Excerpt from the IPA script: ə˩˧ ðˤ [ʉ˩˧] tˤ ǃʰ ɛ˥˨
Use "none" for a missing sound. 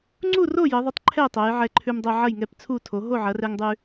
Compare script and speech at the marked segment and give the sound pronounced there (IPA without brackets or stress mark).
ʉ˩˧